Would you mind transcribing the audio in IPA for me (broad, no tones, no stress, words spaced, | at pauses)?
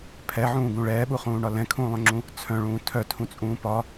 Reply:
pʰɛʕũːɡũ ɭɛːɓuχũːɳɒ lɛ̃kʰũːlˠœ̃ŋ͡ǁũ | t͡sʰœ̃ɭũː tʰœtʰũt͡sʼũː pɒ